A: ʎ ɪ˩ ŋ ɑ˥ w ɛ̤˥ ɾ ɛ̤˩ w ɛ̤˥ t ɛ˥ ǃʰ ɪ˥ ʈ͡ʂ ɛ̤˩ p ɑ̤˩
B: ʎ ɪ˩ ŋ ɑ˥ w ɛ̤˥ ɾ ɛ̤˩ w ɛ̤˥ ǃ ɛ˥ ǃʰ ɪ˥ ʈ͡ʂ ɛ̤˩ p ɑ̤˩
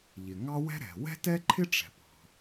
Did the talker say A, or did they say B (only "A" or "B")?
A